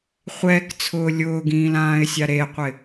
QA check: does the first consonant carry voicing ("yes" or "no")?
no